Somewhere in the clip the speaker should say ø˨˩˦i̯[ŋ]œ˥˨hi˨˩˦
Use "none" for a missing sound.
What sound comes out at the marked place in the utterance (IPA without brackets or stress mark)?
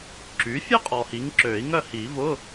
ŋ